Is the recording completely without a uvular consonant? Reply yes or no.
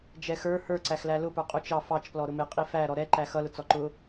no